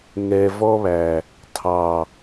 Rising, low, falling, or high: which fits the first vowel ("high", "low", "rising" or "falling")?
low